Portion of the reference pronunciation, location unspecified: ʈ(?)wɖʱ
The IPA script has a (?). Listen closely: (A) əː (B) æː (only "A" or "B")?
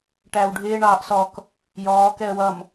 B